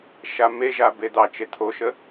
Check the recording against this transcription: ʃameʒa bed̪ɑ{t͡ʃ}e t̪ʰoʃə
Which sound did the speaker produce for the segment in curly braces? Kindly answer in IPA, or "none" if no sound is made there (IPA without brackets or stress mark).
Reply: t͡ʃ